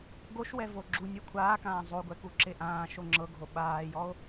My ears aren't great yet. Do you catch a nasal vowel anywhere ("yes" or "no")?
yes